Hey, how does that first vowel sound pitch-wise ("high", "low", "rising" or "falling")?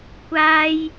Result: high